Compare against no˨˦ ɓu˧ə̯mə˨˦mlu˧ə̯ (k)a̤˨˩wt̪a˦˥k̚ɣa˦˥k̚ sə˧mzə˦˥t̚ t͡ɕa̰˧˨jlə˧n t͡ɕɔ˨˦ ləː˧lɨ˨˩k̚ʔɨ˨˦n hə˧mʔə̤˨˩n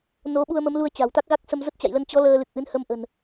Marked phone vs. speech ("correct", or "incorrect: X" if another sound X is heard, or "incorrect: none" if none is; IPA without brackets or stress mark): incorrect: t͡ɕ